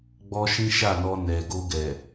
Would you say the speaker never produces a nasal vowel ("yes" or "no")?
no